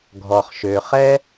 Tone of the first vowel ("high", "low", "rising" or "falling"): low